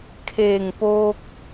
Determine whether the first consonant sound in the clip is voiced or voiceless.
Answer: voiceless